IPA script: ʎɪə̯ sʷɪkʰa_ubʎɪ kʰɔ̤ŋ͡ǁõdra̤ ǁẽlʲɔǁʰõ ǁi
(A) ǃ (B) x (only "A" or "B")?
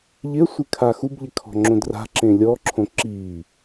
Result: B